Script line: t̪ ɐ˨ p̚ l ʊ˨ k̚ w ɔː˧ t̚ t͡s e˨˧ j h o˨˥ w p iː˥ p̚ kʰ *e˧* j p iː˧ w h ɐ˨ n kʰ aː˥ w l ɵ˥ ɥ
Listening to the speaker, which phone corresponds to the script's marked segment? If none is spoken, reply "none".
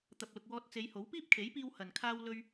e˨˥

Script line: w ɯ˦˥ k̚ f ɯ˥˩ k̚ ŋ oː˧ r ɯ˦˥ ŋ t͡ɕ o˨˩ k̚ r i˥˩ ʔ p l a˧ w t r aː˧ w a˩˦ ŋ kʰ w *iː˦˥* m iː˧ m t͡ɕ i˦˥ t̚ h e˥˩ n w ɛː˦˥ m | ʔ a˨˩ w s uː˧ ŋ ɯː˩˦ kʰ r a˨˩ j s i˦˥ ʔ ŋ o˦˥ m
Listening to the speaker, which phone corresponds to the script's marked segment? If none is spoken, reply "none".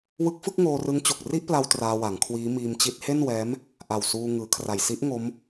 iː˦˥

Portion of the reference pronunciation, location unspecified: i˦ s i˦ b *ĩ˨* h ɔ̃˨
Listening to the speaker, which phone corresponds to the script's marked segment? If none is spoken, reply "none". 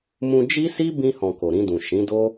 ĩ˧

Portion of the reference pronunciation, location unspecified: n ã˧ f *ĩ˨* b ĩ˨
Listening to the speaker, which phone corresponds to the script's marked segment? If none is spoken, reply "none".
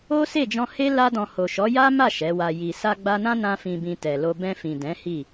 ĩ˨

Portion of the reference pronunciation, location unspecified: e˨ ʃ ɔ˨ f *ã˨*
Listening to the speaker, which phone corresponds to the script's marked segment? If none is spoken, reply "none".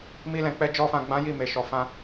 ã˧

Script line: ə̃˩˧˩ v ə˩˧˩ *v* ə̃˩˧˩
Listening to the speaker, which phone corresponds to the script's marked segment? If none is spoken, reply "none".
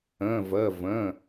v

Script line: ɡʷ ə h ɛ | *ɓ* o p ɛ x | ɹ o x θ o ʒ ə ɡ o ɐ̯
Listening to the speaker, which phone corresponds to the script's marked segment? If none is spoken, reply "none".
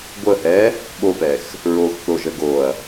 ɓ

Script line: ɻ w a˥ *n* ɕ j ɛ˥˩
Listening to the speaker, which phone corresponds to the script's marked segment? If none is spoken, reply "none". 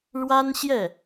n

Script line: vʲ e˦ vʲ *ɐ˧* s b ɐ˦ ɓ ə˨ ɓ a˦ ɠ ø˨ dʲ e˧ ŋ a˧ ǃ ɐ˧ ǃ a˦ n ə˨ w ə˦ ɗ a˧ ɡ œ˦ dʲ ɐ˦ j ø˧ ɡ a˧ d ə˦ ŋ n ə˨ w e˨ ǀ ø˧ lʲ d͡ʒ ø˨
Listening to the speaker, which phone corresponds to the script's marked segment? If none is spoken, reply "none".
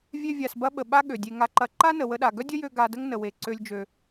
a˧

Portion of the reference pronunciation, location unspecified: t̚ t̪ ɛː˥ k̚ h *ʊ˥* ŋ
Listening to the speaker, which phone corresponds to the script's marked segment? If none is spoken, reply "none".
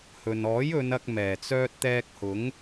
ʊ˨˥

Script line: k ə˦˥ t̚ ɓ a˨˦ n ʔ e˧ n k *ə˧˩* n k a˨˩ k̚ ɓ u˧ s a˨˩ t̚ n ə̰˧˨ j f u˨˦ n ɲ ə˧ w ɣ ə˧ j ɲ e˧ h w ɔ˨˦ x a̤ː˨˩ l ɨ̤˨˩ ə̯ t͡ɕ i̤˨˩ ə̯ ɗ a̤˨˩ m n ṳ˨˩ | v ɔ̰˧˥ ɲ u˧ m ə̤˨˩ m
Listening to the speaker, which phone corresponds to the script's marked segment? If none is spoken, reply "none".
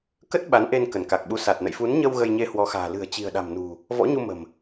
ə˧˩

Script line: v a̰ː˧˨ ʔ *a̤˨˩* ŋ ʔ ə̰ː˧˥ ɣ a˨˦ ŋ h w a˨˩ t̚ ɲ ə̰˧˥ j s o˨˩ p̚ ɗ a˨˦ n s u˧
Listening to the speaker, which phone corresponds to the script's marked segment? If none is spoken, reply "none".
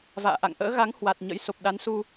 a̰˧˨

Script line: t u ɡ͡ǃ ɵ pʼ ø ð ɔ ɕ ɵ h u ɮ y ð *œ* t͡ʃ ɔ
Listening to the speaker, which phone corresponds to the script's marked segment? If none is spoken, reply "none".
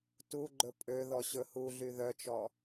œ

